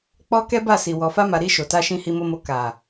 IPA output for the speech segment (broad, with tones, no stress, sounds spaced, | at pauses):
k͡p ɔ˧ k ɛ˦ b a˦˨ s i˨ w ɔ˨ f a˧ m a˨ ɾ i˧ ʃ o˨ t a˧ ʃ ĩ˧ h i˨ m o˨ m o˨ k a˨